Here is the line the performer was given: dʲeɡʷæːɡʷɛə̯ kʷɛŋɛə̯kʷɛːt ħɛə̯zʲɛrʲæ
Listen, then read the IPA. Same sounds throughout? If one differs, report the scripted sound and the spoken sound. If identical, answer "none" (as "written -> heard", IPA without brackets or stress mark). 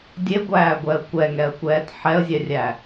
none